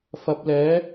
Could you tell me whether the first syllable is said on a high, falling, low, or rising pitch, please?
rising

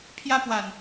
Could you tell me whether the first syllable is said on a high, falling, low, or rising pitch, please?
high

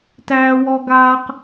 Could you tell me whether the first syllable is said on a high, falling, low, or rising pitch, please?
high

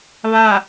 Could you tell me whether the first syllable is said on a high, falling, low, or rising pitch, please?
falling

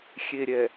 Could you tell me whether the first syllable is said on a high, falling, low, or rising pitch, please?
low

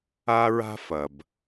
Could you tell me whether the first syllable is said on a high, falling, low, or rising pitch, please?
high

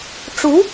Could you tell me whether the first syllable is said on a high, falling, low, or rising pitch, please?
rising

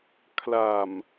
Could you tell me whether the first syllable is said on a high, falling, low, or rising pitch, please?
low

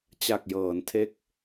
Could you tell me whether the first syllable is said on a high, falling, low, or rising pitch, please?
low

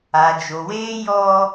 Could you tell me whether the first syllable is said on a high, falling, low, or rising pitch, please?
low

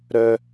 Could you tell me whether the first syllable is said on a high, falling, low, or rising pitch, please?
high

